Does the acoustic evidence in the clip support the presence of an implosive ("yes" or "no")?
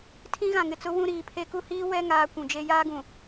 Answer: no